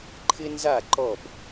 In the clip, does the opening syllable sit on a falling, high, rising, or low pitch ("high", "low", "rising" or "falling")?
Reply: high